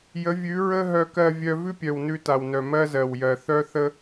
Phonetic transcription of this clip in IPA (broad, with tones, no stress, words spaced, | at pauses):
jə˨˦vʲʉ˨˦ ɹə˦ ɦœ˧kɜ˧ vʲœ˦ vʉ˦pʲœ˨w nʉ˧ta˨wnœ˨ mɜ˦zɜ˨wjɜ˨ θœ˦θə˦